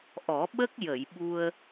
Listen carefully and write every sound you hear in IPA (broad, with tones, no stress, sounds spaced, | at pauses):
ʔ ɔ˨˩˦ ɓ ə˦˥ k̚ j ə˨˩˨ j ɓ u˧ ə̯